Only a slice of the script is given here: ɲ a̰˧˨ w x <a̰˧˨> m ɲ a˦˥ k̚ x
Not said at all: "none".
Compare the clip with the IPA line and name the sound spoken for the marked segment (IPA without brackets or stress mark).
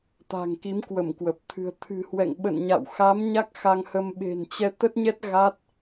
a˨˦